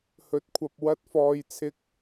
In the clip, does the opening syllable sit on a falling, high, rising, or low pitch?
rising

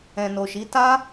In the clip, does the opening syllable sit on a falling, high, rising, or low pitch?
low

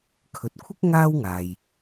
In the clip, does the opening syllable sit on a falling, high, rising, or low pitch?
low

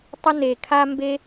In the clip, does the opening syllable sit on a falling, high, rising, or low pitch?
high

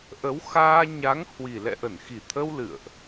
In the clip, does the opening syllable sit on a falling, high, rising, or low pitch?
rising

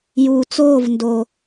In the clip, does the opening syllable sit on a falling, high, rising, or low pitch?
low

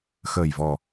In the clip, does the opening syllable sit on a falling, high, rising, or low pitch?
low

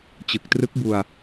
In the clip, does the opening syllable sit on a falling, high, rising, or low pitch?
low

